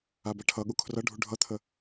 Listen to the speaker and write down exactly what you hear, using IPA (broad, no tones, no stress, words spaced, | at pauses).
abaʈʰʌɠu kʰrʌɖʱu ɖʱʌt̪ʰə